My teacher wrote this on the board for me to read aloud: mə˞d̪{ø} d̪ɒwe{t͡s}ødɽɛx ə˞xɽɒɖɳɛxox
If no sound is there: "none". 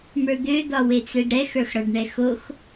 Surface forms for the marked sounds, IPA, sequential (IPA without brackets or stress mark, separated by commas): ø, t͡s